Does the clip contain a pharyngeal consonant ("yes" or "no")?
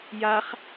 no